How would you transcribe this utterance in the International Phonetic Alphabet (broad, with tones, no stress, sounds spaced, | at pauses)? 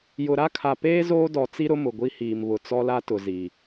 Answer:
j ʊ˨ ɾ a˦ kʰ a˨ p eː˦ z oː˦ d ɔ˨ t͡s i˦ ɾ ʊ˦ m ʊ˨ ɡʷ i˦ h iː˨ m β ʊ˨ t͡s ɔ˦ l a˦ t ʊ˨ z i˨